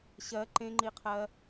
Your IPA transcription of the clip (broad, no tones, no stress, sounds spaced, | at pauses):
ɕ ɜ ǃ ẽ ŋ͡ǃ i qʰ ɜ